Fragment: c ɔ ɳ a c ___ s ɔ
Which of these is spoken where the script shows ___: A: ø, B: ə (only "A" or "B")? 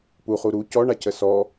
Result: B